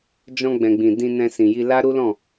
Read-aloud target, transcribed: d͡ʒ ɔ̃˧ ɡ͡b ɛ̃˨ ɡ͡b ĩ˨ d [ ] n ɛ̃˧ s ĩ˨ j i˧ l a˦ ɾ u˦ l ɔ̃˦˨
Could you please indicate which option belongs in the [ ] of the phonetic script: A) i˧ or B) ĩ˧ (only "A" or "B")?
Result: B